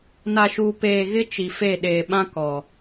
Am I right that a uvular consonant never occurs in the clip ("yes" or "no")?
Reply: yes